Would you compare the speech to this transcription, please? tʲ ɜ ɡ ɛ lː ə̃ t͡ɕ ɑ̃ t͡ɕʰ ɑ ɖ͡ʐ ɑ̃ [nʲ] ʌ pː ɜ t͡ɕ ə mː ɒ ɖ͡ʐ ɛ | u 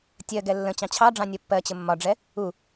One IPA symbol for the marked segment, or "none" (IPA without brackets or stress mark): nʲ